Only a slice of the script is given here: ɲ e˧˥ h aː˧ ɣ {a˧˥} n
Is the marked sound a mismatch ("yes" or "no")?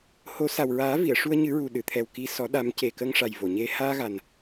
yes